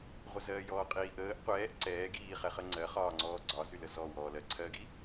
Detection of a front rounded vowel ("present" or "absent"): present